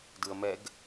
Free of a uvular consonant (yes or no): yes